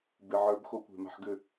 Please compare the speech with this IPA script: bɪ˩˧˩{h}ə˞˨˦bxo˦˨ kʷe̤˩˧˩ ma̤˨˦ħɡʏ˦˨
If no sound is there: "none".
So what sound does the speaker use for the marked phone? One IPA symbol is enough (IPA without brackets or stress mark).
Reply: ʕ